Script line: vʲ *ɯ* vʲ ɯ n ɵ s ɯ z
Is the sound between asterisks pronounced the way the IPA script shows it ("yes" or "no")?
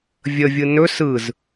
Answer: no